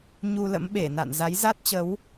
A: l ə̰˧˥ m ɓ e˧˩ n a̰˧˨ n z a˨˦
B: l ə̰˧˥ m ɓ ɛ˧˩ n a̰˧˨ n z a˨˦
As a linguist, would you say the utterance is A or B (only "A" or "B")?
A